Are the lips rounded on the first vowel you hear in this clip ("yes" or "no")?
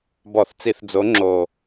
yes